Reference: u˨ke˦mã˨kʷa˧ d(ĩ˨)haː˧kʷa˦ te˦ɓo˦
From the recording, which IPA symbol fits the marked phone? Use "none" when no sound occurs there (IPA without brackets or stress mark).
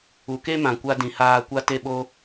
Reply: ĩ˨